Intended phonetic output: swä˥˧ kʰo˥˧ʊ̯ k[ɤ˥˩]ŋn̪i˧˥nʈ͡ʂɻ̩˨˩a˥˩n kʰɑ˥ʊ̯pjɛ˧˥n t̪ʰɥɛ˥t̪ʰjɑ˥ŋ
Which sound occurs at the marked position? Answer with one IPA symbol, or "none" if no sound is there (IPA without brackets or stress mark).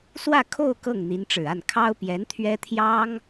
ɤ˥˩